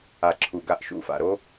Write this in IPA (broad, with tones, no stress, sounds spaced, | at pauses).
a˨ ǁʰ u˨ ɡ a˧ ʔ ʃ ṵ˧ f a̰˨ ɾ o˦